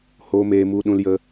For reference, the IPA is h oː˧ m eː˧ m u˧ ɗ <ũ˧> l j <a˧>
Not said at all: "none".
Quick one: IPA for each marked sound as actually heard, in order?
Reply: ũ˧, ə˧

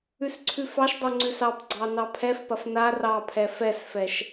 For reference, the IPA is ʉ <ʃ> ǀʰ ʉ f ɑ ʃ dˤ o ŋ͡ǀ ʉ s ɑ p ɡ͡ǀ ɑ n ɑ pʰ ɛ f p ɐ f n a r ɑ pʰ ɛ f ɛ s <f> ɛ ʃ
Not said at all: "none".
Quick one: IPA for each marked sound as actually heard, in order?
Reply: s, f

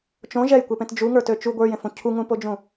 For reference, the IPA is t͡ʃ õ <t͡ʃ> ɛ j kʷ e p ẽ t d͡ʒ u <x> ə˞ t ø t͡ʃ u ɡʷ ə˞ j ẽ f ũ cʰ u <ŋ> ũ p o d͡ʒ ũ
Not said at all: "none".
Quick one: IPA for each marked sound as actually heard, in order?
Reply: ʒ, ŋ, ŋ

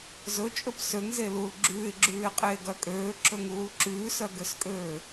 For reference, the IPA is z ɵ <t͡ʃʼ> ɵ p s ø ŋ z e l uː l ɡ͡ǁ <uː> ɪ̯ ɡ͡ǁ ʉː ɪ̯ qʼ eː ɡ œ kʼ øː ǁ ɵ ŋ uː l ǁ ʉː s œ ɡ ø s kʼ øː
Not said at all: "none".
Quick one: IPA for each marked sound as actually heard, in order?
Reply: t͡ʃʼ, ʉː

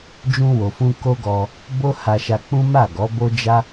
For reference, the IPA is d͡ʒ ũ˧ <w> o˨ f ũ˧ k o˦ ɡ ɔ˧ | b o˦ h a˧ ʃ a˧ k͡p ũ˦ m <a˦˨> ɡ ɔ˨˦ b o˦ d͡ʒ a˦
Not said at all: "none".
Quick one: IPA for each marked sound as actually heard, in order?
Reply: w, a˦˨

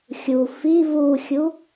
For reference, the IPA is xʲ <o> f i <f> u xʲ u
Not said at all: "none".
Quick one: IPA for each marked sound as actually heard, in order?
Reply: u, v

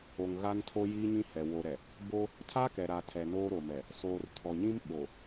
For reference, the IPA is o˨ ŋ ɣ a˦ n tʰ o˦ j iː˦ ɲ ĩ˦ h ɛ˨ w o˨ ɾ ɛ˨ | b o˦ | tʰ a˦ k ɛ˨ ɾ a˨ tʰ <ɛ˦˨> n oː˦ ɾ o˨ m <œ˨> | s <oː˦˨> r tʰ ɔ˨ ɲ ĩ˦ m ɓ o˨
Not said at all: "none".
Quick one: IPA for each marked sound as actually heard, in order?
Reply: ɛ˨, ɛ˨, oː˨

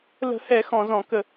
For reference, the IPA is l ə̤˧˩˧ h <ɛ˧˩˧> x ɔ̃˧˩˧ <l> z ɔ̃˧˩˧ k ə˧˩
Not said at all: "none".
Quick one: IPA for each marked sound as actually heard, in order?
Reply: ɛ˧˩˧, none

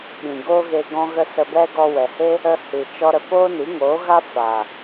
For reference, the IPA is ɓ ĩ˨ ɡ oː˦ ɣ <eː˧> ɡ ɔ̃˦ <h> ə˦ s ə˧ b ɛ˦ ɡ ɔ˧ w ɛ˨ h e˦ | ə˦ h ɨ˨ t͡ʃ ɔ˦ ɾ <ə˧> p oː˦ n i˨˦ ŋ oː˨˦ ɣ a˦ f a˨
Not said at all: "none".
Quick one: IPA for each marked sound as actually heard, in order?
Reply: e˧, ɣ, ə˧

